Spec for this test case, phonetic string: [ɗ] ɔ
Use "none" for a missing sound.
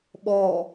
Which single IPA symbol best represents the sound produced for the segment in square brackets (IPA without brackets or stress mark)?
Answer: ɓ